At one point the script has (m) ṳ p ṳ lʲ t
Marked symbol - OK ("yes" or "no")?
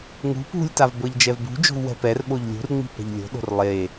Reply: no